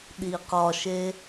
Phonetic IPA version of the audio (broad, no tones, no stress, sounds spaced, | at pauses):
ɗ i q ɒ ʃ e